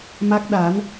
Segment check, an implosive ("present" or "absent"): present